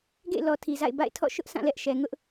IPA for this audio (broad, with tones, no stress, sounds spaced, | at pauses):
ɡ ḛ˦˨ ɪ̯ l ɔ˨ tʰ i˨ z a̰˦˨ ɪ̯ b a̰˦˨ ɪ̯ tʰ ɔ̰˦˨ ʃ ʊ˦ ʔ sʰ ã˦˨ l ɛ˦ ʔ ʃ ɛ˨ ŋ ʊ˦ ʔ